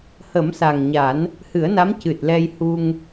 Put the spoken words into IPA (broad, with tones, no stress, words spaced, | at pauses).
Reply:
hə˨˩˦msa˨˩ŋɲa˨˩˦n | hɨ˨˩˦ə̯na˧˥m cɨ˨˩t̚ lɛ˧jhu˧ŋ